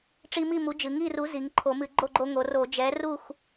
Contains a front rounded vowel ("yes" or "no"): no